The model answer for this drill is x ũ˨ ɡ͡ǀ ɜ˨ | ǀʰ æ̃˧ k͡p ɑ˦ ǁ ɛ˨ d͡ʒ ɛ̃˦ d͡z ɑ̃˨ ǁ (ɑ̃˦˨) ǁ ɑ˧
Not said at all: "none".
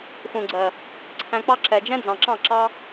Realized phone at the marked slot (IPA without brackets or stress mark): ɑ̃˦˨